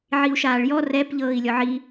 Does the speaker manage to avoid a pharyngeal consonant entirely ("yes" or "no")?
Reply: no